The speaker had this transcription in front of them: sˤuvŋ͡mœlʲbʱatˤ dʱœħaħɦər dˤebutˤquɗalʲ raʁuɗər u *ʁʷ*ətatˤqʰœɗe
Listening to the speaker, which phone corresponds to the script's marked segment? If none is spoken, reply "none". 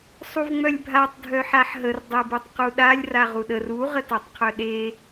ʁ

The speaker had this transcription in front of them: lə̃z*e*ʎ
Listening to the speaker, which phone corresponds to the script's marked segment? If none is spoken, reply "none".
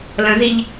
i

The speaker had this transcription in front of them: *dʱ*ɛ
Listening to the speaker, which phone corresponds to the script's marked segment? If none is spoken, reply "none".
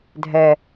dʱ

